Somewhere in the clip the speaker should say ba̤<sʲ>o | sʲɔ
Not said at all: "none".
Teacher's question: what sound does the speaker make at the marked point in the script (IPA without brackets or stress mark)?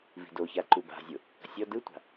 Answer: zʲ